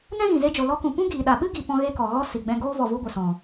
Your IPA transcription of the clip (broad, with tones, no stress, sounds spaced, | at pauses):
n ɛ̃˦ ɣ ĩ˨ z e˧ d͡ʒ o˨ l ɔ˧ k ũ˨ p ũ˦ ɡ iː˨ ɗ a˨ ɓ ɨ˦ ɡ i˨ p ɔ̃˦ ɣ e˦ k ɔ˨ ɣ ɔ˧ s i˨ ɡ͡b ɛ̃˧ ɡ oː˦ v ɔ˨ v u˦ ɡʷ ɨ˨ s ɔ̃˨